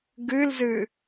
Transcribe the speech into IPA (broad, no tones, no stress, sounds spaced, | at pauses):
ɡ ɨ l z ɨ